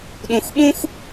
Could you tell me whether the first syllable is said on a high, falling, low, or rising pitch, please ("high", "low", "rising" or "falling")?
low